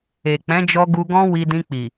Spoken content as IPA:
e˨ k͡p ɛ̃˨˦ d͡ʒ ɔ˧ ɡ u˧ ɡ ɔ̃˦ w i˧ d ĩ˧ k͡p i˨

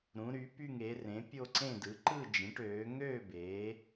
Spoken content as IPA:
ɾ ũ˨˦ ɾ y˨˦ p y˥˧ ŋ e˨˦ r ẽ˨˦ pʲ o˥˧ ǀ ẽ˥˧ d ɯ˨˦ ǃ ɯ˥˧ d͡ʒ ẽ˨˦ ʈ øː˨˦ ŋ øː˥˧ b eː˨˦

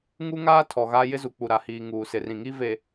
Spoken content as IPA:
ŋ u˦ ŋ aː˦ tʰ ɔ˨ ɣ a˦ j ɪ˦ z u˨ k͡p u˨ ɾ a˨ h iː˨ ŋ uː˨ s ɪ˨ r ĩ˨ ŋ i˦ v e˨

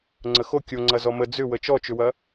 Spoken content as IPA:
ŋ͡ǀ ə x o kʲ o ŋ͡ǀ ɐ z ɔ m ə d͡z ʏ w ə t͡ʃ ɔ t͡ʃ ʏ w ɐ

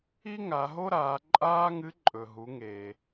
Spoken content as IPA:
i˥ ŋ a˩˧ ɦ o˥ ɾ aː˩˧ ǃʼ aː˥ ŋ ɨ˧˥ ǃʼ ɵ˩ ɦ u˩˧ ŋ eː˩

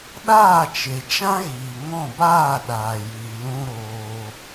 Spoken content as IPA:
ɗ aː˦˨ t͡ʃ e˨ t͡ʃ ã˦ ɣ iː˨ ŋ ɔ̃˦˨ b aː˦˨ ɗ aː˨ j iː˨ l ũ˦ ɾ oː˧

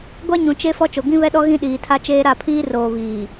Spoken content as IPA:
ɡʷ a˦ ɲ ũ˨ t͡ʃ e˦ f ɔ˦ t͡ʃ o˨ ɡ ĩ˦ β ɛ˦ ɗ ɔ˦ ɣ ĩ˦ ɗ iː˨ tʰ a˦ t͡ʃ eː˦ ɾ a˦˨ pʰ iː˦ r oː˨ β iː˨

